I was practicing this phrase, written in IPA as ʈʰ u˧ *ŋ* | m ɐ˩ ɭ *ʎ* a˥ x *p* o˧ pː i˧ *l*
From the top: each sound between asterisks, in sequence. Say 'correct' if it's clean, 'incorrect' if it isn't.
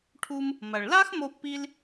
incorrect, incorrect, incorrect, correct

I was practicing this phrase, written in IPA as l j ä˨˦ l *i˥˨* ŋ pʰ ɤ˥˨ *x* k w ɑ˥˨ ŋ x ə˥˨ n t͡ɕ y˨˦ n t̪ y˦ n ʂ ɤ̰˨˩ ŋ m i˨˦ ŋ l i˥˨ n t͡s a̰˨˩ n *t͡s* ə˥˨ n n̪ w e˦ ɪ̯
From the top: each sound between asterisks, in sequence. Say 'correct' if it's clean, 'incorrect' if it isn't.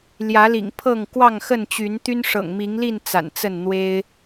incorrect, incorrect, correct

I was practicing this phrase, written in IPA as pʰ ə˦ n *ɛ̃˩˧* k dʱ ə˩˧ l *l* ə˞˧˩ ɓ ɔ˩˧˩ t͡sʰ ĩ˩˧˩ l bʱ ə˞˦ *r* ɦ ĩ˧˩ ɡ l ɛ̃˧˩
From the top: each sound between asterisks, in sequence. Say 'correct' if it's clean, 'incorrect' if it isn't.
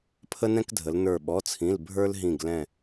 incorrect, incorrect, incorrect

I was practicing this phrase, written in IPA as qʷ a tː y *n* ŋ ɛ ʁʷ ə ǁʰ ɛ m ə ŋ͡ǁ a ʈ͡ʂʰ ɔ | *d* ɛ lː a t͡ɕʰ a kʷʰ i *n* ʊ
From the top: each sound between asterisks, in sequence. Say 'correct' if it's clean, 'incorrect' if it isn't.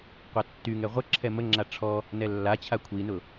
incorrect, incorrect, correct

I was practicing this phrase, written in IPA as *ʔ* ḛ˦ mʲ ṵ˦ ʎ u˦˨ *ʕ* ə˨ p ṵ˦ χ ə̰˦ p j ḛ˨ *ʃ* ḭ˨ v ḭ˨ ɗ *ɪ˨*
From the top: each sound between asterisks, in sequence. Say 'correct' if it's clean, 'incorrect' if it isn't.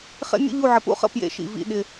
incorrect, correct, correct, correct

